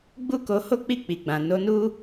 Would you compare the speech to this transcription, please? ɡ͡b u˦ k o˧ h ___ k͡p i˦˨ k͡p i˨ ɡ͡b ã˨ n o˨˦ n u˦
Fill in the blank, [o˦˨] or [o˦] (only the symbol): o˦